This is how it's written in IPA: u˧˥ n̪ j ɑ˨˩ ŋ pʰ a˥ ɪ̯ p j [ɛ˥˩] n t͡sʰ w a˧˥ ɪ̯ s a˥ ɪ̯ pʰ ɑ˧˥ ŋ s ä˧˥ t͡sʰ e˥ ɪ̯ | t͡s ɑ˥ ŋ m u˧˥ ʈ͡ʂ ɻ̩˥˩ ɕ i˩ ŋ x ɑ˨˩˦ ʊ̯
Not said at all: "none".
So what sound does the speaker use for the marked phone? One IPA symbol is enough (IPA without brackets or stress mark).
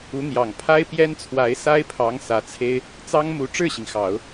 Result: ɛ˥